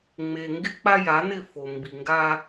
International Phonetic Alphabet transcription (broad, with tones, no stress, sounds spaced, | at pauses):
ŋ͡m e˨ ŋ ɡ ɪ˦ k͡p a˦ j a˨˦ n ɪ˦˨ f o˨ m b i˨ ŋ ɡ a˦